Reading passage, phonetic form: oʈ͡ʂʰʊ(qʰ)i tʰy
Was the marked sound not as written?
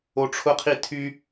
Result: no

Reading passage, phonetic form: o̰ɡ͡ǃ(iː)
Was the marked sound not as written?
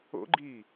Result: no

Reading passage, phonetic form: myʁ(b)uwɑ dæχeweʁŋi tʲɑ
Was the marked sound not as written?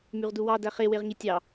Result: yes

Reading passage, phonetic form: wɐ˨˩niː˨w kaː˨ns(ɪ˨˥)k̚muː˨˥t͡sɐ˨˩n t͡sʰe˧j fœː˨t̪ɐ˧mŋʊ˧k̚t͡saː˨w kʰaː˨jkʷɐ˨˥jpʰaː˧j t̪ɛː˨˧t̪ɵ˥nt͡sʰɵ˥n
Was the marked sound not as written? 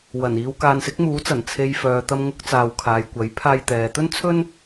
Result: no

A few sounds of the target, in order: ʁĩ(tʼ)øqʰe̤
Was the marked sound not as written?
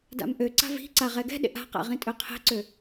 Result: no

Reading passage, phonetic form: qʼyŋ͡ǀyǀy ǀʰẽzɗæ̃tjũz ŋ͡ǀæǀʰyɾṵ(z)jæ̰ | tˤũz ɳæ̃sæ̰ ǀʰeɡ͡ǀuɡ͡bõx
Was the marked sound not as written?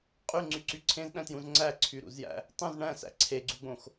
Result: no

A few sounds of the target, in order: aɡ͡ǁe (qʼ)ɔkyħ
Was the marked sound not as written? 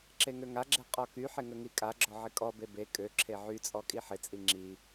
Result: no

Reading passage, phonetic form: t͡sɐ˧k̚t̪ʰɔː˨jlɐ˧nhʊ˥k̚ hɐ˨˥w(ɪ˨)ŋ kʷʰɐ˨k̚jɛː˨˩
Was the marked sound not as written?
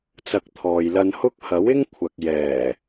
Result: yes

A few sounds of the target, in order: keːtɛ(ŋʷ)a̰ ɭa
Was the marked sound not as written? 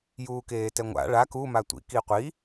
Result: no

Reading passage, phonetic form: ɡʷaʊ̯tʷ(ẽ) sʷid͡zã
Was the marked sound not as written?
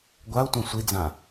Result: yes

